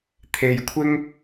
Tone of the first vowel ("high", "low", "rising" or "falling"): low